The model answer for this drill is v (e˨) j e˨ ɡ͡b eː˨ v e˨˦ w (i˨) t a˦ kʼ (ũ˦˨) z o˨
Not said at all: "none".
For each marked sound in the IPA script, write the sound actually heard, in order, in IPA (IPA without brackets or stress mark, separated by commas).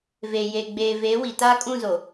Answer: e˨, i˨, ũ˦˨